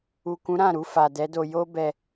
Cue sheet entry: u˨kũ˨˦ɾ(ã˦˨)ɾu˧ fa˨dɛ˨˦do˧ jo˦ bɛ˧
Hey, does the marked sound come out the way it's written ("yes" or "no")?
yes